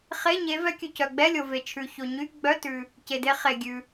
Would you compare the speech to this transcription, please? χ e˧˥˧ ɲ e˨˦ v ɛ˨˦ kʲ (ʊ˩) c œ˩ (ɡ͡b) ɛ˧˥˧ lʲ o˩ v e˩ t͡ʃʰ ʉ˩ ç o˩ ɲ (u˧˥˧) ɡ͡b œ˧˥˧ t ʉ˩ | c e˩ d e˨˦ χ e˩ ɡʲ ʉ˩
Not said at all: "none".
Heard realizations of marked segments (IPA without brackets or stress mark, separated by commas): ʉ˩, ɡ͡b, y˧˥˧